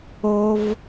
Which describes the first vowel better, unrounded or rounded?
rounded